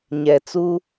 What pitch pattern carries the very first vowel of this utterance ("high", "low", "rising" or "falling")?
low